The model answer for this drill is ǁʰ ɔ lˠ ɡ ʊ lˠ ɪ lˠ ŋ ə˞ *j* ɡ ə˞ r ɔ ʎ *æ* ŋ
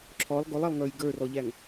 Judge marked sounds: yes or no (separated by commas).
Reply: yes, yes